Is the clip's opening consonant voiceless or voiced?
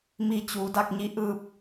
voiced